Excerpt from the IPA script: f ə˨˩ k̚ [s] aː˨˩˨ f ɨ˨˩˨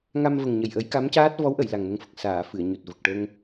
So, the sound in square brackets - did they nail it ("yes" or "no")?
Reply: yes